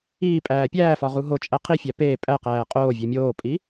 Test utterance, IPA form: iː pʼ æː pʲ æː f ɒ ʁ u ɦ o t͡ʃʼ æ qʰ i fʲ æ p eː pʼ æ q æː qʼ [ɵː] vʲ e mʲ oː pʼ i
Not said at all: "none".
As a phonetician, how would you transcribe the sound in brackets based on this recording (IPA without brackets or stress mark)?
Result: oː